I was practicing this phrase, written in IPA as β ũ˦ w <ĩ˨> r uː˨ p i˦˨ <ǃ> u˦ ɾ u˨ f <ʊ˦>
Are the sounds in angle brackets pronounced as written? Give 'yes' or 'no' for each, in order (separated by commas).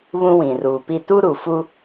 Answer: yes, no, no